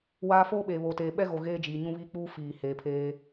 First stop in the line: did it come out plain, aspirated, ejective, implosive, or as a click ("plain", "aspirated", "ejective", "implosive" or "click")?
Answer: implosive